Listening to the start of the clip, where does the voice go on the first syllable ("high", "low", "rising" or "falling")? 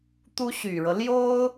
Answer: high